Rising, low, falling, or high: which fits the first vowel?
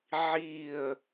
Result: falling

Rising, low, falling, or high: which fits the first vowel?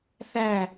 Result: falling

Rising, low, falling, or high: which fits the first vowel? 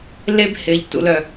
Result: high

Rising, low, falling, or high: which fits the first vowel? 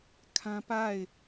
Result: high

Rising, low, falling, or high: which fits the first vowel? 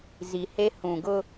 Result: low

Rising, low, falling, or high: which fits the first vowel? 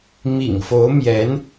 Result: low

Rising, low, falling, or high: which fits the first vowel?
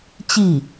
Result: falling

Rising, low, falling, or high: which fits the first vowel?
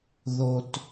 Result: low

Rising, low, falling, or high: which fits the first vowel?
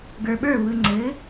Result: low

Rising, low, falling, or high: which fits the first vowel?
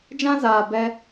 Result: high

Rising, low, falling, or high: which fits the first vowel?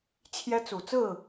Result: high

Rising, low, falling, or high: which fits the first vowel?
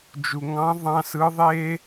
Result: low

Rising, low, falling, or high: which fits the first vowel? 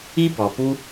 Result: high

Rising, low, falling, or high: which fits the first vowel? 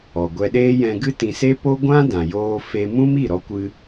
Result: low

